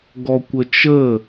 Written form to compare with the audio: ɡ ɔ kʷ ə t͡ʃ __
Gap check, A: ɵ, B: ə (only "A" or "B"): B